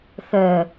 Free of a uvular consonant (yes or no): yes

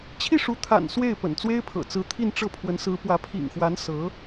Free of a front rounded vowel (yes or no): yes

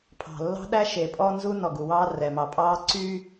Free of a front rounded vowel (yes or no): no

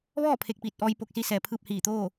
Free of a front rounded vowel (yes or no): yes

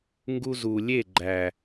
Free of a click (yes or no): no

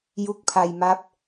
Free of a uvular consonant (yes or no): yes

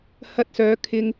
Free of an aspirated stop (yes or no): no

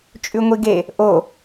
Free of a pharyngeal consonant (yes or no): yes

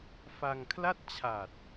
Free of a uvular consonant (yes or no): yes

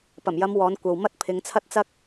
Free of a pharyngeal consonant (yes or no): yes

